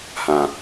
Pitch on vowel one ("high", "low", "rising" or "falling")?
low